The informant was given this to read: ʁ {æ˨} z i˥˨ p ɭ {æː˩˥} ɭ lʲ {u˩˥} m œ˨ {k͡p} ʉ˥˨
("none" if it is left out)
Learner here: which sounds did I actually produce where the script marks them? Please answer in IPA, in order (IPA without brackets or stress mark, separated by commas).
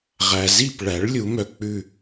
æ˨, æ˩˥, u˩˥, k͡p